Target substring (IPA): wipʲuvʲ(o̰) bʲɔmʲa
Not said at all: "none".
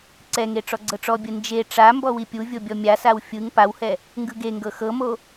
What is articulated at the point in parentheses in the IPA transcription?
o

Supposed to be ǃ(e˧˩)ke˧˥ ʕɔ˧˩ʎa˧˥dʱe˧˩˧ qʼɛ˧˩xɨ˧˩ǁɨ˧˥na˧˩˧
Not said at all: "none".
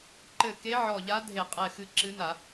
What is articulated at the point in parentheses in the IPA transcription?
ɘ˧˩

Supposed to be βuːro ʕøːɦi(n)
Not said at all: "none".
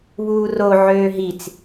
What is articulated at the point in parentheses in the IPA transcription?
t͡s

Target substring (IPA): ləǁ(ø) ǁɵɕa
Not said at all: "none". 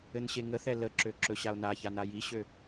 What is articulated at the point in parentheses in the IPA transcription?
ø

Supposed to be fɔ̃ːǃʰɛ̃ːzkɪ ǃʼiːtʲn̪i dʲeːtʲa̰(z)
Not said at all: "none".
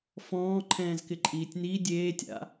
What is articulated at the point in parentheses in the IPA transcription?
none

